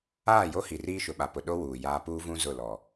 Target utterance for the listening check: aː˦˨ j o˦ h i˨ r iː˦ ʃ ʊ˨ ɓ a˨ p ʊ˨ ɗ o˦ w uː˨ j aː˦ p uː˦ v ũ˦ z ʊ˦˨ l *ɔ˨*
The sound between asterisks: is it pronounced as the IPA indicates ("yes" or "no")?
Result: yes